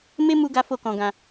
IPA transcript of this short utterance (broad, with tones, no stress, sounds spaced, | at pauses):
m e˦ m u˦ ɡ a˦ f o˦˨ k ɔ̃˧ ɡ ã˧